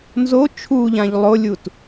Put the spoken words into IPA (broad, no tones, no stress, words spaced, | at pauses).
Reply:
nzo t͡ʃʰuʎãʎ lˠolʲut